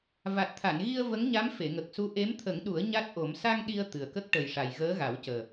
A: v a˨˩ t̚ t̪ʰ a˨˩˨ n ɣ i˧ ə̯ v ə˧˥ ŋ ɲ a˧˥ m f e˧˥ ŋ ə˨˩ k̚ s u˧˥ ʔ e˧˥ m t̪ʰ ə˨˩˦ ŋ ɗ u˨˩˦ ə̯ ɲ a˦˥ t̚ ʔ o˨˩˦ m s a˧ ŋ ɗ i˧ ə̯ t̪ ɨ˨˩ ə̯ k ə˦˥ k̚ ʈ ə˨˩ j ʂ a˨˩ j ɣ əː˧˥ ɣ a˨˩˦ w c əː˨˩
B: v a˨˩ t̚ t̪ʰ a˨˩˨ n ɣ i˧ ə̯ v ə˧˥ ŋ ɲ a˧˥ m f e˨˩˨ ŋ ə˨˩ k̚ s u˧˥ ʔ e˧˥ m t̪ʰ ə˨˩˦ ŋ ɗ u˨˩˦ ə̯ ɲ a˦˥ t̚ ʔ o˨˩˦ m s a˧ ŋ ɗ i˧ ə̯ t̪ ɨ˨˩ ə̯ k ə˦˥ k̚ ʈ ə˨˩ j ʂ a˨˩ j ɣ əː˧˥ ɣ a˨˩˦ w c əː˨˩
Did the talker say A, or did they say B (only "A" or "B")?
B